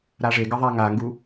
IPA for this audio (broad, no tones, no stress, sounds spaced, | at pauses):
ɾ a ʐ e ɡ ə ðˤ a ŋ a ŋ ɡ u